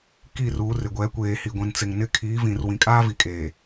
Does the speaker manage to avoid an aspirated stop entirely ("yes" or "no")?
no